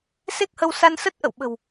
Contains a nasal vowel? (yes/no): no